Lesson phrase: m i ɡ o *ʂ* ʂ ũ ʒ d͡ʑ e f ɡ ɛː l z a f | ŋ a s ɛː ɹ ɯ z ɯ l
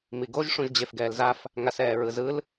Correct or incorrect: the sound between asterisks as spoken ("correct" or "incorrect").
incorrect